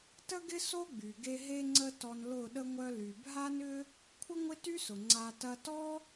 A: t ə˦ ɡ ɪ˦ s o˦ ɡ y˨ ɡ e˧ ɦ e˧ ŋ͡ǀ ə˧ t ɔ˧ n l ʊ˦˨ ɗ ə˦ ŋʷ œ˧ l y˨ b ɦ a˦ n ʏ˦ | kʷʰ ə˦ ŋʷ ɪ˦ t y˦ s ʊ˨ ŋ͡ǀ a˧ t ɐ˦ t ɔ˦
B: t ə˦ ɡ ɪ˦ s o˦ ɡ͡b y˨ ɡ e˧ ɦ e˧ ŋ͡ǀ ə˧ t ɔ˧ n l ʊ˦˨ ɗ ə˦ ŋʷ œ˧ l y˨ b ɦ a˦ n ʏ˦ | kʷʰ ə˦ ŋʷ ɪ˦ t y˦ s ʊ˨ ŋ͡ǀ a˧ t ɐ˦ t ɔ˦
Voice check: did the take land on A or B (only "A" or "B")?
B